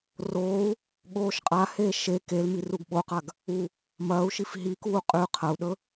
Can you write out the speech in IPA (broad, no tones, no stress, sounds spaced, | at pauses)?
r oː u̯ | ɠ oː ʃ qʼ a h eː ʃ e k e l m i r u ɡ ɓ o q a ɡ | u | m ɐː u̯ ʃ i f ɦ i k uː qʼ ʉ qʰ ɐ u̯ ɗ ɵ